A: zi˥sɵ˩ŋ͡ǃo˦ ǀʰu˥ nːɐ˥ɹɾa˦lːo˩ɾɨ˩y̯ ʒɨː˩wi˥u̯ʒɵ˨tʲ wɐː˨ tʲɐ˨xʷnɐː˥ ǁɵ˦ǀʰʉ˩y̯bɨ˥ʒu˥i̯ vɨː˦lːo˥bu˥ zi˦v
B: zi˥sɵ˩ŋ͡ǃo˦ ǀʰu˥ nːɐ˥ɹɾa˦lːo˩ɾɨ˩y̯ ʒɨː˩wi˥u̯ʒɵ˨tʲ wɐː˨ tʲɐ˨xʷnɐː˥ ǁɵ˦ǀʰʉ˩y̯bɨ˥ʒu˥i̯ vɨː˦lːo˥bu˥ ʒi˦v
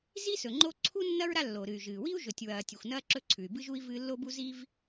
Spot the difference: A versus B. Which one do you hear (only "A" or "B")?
A